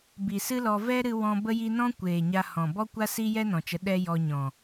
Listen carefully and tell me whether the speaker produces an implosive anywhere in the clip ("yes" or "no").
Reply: yes